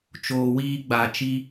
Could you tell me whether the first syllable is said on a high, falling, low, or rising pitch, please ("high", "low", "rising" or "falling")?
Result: low